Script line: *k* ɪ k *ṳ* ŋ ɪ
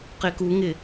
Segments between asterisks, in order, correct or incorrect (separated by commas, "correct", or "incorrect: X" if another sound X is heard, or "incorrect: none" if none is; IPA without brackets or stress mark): incorrect: q, incorrect: u